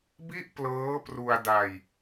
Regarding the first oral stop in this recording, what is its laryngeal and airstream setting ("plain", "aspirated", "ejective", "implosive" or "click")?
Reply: plain